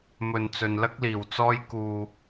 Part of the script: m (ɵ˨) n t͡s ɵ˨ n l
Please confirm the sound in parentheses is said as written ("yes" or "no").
yes